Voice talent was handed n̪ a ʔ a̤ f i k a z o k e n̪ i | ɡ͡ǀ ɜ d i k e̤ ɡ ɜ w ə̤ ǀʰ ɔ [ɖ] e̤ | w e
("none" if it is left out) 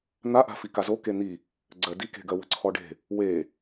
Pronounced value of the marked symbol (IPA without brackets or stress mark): ɖ